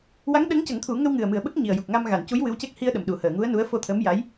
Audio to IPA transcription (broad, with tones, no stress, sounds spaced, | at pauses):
w a˧˥ ŋ ɗ əː˧˥ ŋ c ə˨˩˦ ŋ t̪ʰ u˨˩˦ ŋ ə˧ w ŋ ɨ˨˩ ə̯ m ɨ˨˩ ə̯ ɓ ə˦˥ k̚ ɲ i˨˩ ə̯ j u˨˩ k̚ ŋ a˧ m ɣ a˨˩˨ n c u˧˥ j w ɨ˧˥ w c e˦˥ k̚ h i˧ ə̯ ɗ ə˨˩ m ɗ u˨˩˦ h əː˨˩˨ ŋ u˧˥ ə̯ n u˧˥ ə̯ f o˧ t̪ʰ ə˧˥ m j a˧˥ j